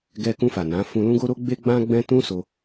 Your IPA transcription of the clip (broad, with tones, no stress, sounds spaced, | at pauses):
ɡ ɛ˧ k ũ˧ f a˨ n ã˨˦ f ũ˧ l ũ˦ ɡ o˦ ɾ o˦ ɡ͡b e˦ ɡ͡b ã˦ ɡ͡b ɛ̃˦ t ũ˦ s o˧